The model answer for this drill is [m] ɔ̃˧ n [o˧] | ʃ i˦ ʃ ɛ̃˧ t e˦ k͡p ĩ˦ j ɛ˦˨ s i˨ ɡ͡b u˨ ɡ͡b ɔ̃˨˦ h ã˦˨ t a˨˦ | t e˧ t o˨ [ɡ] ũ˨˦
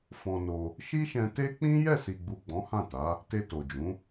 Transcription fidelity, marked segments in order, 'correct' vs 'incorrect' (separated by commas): incorrect, correct, incorrect